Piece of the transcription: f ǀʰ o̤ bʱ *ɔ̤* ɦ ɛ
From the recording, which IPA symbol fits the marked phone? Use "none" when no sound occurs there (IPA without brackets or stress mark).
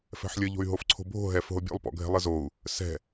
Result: o̤